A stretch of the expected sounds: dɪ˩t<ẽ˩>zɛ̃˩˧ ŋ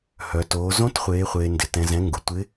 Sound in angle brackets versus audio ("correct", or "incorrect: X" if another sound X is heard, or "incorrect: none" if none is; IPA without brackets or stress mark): incorrect: ɛ̃˩